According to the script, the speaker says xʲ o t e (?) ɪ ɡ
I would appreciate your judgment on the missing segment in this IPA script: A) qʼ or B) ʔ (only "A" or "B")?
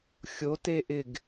B